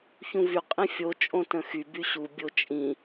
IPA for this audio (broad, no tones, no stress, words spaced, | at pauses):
çũvy qʼĩfʲo t͡ʃʼõtə̃xy byɕu bʲot͡ʃʼĩ